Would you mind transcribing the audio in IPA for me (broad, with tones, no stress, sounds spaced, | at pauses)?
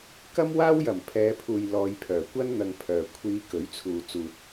k ɐ˥ m w aː˥ w j ɐ˨˩ m pʰ ɛː˨˧ pʰ uː˨ j l ɔː˨˧ j pʰ œː˨˩ kʷ ɐ˥ n n̪ ɐ˧ ŋ pʰ œː˨ kʷʰ iː˨˧ k ɵ˨˥ ɥ t͡sʰ uː˨ t͡s uː˨ t̚